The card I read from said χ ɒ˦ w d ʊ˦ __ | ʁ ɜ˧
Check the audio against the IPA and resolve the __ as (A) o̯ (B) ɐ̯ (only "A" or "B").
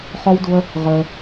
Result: B